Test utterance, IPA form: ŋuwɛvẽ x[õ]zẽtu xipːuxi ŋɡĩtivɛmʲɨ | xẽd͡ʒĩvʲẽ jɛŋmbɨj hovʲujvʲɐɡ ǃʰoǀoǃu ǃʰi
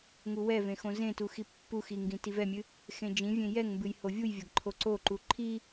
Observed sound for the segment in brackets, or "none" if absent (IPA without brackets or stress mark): õ